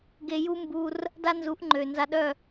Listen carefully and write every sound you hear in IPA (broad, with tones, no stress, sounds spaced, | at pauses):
ɡ e˧ j u˦ m b u˧ r | d a˦ n z u˨˦ ʔ ŋ͡ǃ ø˨ n z a˧ ɗ œ˦˨